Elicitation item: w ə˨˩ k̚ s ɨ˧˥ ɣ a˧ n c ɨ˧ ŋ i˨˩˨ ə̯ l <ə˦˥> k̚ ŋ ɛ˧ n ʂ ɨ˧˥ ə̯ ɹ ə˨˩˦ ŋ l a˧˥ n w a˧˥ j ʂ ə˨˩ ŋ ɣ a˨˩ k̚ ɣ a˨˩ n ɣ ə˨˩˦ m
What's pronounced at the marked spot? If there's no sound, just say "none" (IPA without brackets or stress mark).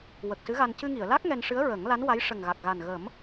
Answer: a˦˥